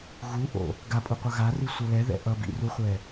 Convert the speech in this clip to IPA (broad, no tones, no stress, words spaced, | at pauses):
ɣuʔo̰ | ɡapʼuqʷʌ ɣari sʷʌlɛðɛ̰ ʔʌbḭruχʷɛ